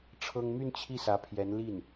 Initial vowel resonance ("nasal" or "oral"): oral